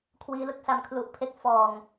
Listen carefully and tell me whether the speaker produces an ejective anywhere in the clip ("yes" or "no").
no